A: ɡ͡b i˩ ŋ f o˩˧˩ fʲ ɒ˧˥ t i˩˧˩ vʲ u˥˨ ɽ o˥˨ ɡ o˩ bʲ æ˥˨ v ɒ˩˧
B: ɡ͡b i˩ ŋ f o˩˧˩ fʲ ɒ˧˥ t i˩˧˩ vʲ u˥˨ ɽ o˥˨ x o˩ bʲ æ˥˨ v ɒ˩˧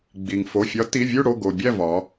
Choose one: A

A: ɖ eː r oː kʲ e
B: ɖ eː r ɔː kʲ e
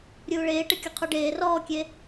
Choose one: B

